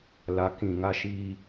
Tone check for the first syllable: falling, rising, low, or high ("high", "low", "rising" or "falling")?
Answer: rising